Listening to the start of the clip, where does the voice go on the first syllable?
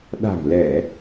low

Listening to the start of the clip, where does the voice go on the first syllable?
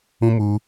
high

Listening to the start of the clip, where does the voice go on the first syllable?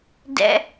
low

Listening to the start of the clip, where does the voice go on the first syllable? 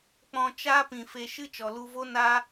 low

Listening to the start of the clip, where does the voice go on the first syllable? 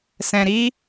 low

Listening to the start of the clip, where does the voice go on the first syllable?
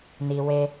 low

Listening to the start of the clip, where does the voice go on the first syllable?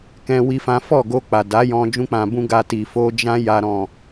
high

